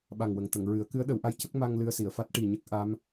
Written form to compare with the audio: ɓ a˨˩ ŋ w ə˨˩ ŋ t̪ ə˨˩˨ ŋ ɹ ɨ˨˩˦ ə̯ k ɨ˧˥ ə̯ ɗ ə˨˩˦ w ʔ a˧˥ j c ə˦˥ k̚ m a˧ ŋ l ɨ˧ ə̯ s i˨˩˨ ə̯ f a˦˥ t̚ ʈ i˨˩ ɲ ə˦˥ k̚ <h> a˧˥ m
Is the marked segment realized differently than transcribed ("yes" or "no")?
yes